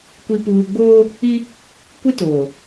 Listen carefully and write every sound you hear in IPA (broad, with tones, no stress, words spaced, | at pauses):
kʷi˨puː˨ɡ͡boː˦ | i˦ | kʷi˦toː˨